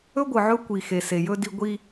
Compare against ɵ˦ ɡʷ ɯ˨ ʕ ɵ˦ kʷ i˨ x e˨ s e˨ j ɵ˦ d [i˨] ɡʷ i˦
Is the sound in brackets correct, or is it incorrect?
incorrect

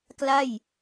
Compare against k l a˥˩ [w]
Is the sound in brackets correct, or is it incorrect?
incorrect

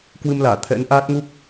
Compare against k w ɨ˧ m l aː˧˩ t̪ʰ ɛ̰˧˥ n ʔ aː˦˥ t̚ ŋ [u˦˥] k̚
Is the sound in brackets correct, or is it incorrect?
correct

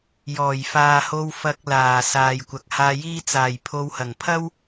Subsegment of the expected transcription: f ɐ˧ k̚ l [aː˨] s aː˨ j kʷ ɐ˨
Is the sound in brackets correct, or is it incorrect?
incorrect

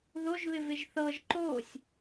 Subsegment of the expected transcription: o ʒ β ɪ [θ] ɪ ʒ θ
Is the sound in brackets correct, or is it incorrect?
incorrect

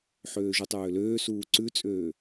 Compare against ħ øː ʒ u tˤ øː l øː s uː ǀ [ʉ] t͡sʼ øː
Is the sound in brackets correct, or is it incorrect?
correct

